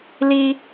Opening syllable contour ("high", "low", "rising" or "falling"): high